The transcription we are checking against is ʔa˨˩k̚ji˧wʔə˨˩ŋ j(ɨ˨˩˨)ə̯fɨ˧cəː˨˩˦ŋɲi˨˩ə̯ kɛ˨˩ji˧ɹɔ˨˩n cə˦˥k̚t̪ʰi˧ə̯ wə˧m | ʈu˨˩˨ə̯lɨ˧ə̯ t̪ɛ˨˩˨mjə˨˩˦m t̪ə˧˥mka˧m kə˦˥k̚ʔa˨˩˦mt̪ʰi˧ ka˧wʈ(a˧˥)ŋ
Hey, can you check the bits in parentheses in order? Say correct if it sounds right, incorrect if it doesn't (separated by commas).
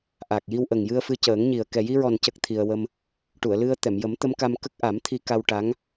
incorrect, correct